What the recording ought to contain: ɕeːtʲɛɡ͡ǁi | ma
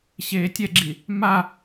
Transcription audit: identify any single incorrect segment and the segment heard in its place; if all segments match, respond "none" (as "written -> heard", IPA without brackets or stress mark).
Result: none